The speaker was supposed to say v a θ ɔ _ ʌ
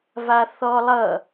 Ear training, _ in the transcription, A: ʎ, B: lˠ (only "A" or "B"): B